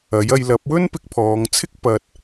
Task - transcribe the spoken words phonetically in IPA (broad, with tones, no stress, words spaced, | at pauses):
ɐ˨˥jɐ˧jlɐ˨˥p̚ wɵ˥npɪ˧k̚pʰɔː˨˧ŋt͡sʰɪ˥k̚ pɐ˧t̚